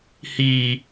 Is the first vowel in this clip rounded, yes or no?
no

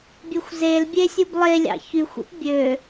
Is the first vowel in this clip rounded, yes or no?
no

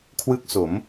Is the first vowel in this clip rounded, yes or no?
no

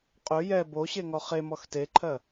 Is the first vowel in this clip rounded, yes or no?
yes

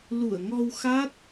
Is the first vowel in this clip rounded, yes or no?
yes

